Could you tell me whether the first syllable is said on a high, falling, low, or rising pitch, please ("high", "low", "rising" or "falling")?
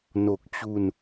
low